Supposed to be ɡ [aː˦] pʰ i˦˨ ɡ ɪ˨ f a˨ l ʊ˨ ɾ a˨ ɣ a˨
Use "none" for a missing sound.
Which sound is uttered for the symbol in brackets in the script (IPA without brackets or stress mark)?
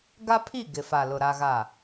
a˦